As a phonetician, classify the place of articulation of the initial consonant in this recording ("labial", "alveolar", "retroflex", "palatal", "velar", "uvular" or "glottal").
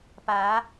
labial